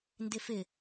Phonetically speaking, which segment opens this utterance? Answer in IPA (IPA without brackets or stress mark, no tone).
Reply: n